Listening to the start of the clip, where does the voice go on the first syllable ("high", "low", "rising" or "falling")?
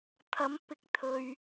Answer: rising